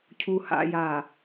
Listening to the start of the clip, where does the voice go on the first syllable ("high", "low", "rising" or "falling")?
low